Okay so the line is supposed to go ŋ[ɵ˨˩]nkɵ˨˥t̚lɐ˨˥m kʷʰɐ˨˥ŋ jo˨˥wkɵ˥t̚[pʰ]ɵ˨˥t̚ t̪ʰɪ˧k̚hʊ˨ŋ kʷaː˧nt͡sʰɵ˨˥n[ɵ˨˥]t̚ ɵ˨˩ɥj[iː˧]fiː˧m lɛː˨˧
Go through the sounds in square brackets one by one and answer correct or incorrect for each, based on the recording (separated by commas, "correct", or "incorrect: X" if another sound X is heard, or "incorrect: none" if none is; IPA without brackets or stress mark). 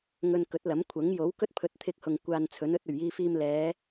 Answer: incorrect: ɵ˧, correct, correct, correct